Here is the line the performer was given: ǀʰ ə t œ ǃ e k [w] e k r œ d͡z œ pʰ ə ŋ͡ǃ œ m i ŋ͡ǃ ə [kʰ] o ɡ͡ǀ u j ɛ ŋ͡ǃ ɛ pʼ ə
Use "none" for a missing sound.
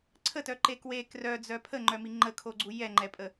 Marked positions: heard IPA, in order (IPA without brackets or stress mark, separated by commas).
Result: w, kʰ